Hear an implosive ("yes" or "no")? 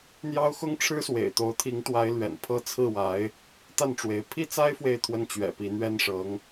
no